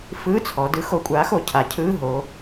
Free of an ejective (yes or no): no